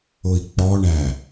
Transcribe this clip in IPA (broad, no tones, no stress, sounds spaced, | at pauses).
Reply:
ʊ i̯ k͡p ɔ ɳ æ